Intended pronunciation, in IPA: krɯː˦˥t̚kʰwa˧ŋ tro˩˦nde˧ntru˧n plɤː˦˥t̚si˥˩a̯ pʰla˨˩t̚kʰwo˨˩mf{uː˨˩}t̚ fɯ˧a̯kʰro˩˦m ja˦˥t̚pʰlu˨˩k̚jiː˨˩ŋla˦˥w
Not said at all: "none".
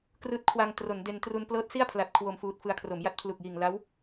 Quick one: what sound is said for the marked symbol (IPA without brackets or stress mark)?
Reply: uː˨˩